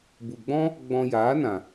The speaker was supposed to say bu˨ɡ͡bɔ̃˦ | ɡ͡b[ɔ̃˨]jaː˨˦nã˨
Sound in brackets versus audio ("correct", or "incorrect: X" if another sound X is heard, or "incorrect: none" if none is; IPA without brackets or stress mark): incorrect: ɔ̃˧